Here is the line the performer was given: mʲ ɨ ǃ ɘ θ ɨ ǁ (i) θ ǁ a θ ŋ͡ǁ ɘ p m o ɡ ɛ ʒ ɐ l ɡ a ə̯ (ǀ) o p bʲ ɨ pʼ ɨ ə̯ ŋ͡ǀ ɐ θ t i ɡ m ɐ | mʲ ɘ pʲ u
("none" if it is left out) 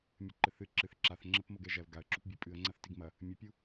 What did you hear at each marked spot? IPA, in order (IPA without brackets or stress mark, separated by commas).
ɨ, ǁ